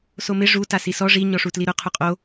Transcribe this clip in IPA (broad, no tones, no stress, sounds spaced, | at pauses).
s o m ɪ ʐ u t a s i s ɔ ʐ i ɲ ɔ ʂ u t l i ɾ ʊ qʰ u qʼ o